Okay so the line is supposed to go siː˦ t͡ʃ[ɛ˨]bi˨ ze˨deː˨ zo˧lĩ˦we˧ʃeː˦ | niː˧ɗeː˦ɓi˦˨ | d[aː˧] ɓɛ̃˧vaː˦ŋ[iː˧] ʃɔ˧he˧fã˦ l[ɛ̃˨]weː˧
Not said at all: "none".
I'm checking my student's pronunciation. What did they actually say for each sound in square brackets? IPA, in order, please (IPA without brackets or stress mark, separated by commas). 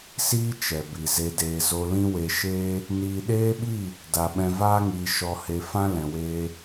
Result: ɛ˨, a˧, iː˧, ɛ̃˨